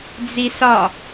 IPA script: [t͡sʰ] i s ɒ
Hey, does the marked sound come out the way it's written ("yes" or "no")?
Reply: no